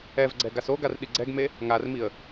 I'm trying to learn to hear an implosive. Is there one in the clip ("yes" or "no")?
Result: yes